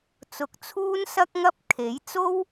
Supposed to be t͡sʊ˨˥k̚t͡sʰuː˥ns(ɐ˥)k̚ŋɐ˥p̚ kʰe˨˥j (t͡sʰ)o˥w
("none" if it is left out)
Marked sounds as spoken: ɐ˥, t͡s

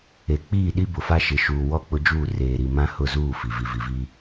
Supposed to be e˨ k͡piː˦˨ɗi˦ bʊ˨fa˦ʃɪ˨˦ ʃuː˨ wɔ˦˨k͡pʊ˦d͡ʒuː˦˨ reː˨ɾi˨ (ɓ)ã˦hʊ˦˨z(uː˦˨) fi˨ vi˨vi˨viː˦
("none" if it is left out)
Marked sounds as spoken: m, uː˦˨

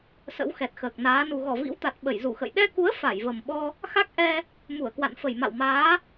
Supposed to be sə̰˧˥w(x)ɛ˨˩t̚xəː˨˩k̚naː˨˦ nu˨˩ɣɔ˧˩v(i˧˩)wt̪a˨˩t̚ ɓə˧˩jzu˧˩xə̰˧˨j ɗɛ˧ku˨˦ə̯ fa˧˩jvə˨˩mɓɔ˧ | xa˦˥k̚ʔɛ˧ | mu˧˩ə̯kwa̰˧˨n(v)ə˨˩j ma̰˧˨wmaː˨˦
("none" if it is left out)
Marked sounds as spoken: x, ḭ˧˥, f

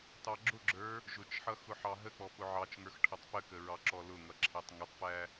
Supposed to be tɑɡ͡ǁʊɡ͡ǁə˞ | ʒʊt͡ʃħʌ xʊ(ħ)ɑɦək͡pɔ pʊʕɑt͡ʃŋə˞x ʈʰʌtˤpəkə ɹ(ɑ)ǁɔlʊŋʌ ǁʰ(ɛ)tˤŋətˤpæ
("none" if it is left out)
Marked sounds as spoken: ħ, ɑ, æ

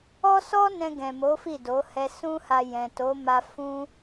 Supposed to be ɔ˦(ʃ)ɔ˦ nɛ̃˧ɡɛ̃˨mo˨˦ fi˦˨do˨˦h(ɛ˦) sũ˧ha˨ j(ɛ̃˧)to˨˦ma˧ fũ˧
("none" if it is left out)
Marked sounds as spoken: s, ɛ˧, ɛ̃˨

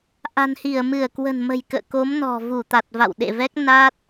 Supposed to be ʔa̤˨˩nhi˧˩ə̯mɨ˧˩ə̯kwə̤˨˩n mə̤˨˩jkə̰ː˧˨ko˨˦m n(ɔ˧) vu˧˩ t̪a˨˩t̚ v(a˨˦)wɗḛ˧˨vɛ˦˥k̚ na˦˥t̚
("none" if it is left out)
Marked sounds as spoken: ɔ̤˨˩, a̰˧˨

